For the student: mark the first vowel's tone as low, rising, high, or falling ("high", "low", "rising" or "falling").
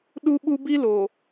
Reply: high